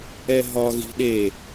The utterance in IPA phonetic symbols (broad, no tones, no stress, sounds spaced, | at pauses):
ɛ ɦ ɒ ɣ i̤ ɗ e